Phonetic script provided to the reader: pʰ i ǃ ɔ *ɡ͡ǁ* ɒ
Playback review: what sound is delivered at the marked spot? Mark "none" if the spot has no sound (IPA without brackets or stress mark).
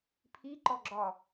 ɡ͡ǁ